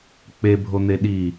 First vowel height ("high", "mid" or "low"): mid